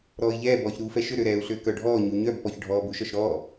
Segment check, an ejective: absent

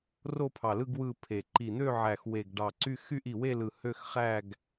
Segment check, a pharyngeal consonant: present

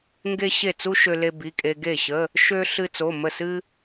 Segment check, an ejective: present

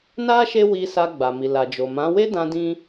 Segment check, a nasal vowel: present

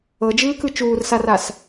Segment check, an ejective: absent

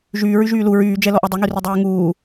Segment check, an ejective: absent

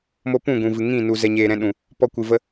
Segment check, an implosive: present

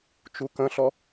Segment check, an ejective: absent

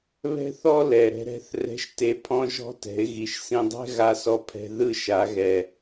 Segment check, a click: absent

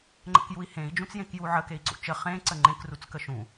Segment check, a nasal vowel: present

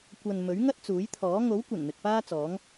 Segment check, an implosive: absent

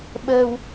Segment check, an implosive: present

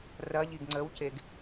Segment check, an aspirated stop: absent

